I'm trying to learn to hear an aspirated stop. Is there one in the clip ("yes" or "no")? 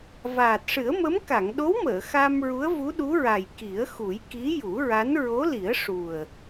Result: no